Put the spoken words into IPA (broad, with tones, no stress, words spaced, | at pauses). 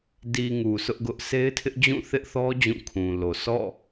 di˨ ŋu˨sʰʊ˦ʔɡʊ˦ʔ sʰe˦ɪ̯tʰɪ˦ʔd͡ʑũ˦˨ θɪ˦ʔθɔ˦ d͡ʑũ˦˨kʰũ˨lo˨ sʰɔ̰˦˨